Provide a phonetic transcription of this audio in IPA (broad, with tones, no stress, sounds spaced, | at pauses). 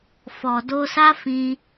f ɔ˨ d o˧ s a˦ f ĩ˦